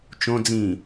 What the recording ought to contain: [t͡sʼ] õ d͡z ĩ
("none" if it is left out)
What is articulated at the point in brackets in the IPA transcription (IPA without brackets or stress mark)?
t͡ʃ